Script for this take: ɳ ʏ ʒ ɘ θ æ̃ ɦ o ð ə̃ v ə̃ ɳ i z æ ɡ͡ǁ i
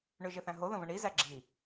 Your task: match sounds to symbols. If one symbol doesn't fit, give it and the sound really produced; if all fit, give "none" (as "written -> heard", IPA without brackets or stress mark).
none